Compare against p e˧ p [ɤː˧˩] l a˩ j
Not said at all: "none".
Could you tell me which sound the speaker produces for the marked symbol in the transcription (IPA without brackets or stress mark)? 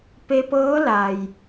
ɤː˧˥